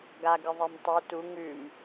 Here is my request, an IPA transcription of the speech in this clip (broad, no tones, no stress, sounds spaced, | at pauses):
ɡ a ɡ ɨ ðˤ e m tˤ u t u ŋ ʉ m